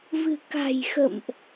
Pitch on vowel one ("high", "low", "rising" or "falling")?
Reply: low